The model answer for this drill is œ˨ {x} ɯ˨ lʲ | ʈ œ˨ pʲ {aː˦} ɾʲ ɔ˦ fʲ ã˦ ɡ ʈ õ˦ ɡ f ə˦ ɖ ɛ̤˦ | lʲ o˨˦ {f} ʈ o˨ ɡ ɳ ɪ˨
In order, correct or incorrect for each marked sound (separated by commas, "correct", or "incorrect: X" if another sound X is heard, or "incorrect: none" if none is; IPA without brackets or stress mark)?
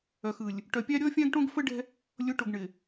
correct, incorrect: a˦, incorrect: none